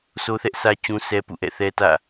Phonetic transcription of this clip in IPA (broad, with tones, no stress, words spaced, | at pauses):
sʰo˦θɛ˦ʔ sä˦ t͡ɕũ˦sʰɛ˦pṵ˦˨ʔɛ̰˦˨ θɛ˦tä̰˦˨